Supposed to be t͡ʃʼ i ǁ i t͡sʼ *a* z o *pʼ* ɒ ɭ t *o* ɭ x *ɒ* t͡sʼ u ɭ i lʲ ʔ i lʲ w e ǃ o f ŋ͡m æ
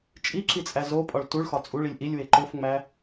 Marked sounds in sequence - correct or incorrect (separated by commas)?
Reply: incorrect, correct, incorrect, correct